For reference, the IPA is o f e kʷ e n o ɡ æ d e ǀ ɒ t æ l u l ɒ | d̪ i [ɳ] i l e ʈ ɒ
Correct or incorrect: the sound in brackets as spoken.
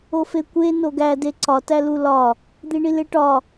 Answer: correct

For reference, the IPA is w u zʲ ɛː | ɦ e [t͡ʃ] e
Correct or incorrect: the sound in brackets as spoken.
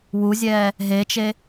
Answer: correct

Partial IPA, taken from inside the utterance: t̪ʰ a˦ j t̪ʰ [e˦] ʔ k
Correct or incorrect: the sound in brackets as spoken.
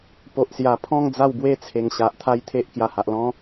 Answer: correct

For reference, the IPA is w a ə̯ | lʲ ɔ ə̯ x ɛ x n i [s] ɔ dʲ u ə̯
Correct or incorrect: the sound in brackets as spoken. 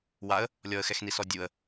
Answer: correct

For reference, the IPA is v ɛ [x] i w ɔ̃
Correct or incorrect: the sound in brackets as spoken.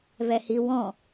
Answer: incorrect: h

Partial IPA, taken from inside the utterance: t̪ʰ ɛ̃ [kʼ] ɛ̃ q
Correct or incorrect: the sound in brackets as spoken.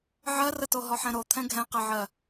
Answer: incorrect: ɡʱ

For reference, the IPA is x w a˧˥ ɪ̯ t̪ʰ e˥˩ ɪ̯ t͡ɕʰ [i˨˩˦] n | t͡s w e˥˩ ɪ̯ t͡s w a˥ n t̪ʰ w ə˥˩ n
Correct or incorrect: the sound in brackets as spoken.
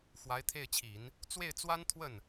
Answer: correct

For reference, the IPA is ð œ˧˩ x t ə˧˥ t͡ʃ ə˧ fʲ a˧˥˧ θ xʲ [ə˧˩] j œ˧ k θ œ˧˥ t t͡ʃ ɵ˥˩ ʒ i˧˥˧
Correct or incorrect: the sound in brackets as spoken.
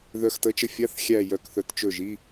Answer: incorrect: æ˧˩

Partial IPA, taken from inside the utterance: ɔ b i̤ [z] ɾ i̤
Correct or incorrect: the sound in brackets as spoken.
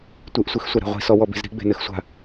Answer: correct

